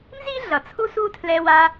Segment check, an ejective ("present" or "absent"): absent